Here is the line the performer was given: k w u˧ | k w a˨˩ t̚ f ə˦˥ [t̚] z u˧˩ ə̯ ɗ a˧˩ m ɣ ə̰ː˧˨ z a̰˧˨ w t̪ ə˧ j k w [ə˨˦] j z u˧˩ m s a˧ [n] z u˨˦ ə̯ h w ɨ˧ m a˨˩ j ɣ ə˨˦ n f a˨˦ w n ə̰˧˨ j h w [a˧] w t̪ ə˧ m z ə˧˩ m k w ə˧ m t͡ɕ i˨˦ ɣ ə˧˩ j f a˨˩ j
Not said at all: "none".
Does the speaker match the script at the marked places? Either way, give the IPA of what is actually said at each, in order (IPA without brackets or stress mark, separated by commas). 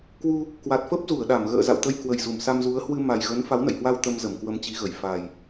p̚, ə˨˩, m, a˧